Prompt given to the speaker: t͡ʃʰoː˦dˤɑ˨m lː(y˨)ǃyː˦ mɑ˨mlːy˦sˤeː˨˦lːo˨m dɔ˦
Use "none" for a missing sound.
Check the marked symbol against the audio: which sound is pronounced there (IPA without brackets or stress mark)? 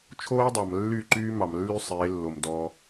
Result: y˦˨